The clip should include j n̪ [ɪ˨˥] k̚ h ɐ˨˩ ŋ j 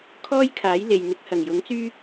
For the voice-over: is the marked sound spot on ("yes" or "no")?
yes